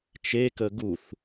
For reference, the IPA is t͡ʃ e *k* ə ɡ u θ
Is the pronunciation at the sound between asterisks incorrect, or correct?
correct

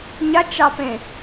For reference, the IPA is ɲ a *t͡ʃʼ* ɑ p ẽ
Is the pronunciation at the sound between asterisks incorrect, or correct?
incorrect: t͡ʃ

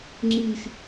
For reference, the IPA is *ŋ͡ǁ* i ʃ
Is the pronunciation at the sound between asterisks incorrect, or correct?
correct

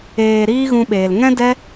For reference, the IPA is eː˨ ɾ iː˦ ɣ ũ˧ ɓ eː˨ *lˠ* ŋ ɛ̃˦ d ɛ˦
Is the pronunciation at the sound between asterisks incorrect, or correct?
incorrect: l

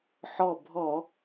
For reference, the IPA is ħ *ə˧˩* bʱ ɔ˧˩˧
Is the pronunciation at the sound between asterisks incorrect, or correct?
incorrect: ɔ˧˩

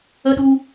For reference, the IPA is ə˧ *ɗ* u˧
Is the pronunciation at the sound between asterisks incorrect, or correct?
correct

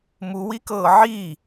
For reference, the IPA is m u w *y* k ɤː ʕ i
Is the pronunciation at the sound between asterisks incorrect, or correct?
incorrect: i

